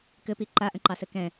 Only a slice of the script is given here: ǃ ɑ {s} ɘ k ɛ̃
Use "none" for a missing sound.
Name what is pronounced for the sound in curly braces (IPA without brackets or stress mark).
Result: s